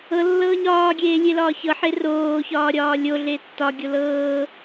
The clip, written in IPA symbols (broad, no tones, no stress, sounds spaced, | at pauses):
ɤ lː ɤː ɲ ɒː ɡʲ eː lʲ e l ɒː ç ɤ ħ e r oː ç ɒː ɾʲ ɒː lʲ o ɮ e tː ɒ ɡʲ o l ɤː